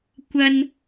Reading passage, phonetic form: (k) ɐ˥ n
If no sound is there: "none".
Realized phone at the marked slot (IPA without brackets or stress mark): kʷ